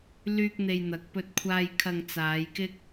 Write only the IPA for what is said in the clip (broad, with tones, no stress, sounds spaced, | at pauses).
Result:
l yː˥ k̚ n̪ e˧ j n̪ ɐ˨ k̚ p ɵ˧ t̚ kʷʰ aː˧ j kʰ ɐ˧ ŋ t͡s aː˨˧ j k ɪ˥ k̚